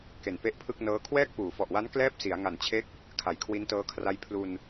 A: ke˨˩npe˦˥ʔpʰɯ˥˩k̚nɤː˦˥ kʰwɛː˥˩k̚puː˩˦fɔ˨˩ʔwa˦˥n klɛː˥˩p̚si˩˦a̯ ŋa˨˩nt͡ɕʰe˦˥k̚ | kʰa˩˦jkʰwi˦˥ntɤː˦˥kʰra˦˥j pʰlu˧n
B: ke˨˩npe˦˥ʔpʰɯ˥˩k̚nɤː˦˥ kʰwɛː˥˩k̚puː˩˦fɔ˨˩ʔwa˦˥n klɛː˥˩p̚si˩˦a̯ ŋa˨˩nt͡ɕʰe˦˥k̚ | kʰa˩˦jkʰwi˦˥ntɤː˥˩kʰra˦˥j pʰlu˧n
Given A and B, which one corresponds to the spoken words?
A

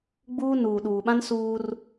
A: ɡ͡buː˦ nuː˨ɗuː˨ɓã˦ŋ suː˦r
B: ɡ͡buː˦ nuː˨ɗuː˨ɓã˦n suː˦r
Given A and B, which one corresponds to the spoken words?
B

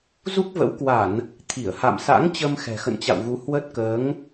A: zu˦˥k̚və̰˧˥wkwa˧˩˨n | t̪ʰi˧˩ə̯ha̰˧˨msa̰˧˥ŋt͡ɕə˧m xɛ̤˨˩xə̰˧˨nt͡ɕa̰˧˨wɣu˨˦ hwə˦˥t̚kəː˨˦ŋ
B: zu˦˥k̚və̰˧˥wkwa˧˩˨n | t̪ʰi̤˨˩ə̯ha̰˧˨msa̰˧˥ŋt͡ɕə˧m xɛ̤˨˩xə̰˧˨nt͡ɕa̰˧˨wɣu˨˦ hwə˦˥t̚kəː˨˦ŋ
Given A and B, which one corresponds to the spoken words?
A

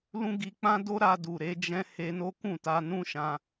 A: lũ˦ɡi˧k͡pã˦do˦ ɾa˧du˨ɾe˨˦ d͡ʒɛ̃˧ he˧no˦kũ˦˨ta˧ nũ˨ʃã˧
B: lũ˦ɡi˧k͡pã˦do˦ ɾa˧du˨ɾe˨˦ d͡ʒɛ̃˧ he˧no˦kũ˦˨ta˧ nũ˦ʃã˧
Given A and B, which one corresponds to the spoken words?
B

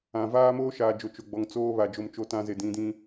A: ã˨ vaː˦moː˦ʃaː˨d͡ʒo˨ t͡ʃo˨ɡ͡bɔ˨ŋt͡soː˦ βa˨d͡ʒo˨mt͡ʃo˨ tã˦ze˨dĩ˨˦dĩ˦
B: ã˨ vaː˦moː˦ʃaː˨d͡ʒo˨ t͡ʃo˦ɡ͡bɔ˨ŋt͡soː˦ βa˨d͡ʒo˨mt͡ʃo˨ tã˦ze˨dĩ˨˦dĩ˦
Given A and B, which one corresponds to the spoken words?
A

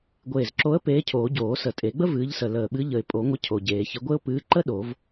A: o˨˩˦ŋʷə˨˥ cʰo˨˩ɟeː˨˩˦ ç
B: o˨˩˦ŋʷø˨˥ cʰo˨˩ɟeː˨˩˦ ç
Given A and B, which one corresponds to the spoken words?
A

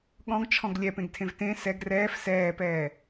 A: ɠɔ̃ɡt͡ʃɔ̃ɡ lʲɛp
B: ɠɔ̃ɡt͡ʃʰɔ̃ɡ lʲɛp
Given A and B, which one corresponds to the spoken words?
B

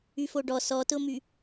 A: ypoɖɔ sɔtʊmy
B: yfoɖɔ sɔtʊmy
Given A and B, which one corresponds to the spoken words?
B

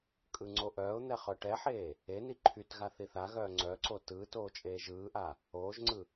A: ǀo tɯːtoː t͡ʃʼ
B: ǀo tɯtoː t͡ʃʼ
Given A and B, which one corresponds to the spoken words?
A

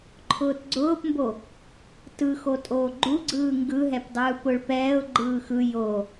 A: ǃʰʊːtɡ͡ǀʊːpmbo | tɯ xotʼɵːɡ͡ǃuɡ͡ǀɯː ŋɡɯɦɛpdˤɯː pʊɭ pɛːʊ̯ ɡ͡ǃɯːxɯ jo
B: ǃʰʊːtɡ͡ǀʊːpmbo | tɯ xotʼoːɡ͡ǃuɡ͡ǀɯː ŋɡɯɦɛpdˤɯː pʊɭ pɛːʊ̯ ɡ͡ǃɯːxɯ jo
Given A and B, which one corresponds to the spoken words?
B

